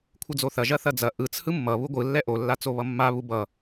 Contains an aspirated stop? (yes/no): yes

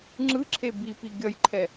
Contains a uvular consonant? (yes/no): no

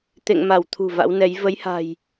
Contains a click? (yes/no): no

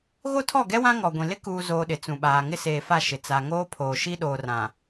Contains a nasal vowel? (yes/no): yes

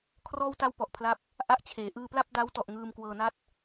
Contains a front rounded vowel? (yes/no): no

